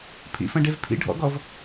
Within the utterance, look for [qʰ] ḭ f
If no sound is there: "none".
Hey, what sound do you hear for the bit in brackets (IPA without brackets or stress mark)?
pʰ